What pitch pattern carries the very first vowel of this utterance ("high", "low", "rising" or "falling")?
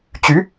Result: rising